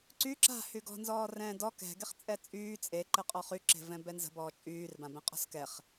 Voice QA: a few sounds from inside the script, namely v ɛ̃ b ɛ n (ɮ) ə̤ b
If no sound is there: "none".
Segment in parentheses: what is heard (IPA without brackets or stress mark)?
z